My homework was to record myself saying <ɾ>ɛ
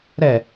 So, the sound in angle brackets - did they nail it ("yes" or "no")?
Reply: yes